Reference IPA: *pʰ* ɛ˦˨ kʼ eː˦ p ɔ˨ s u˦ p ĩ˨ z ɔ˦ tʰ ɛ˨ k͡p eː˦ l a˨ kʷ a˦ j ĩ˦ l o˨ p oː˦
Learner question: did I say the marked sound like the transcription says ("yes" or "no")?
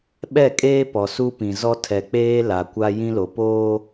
no